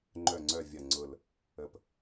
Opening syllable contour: low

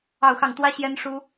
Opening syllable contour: falling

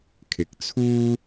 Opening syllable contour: rising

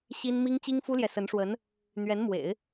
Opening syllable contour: high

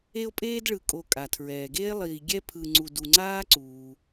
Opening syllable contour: high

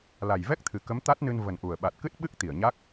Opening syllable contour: low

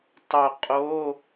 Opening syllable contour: low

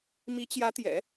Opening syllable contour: rising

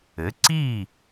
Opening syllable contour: rising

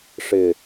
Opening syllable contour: low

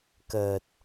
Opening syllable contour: low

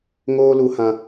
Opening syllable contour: high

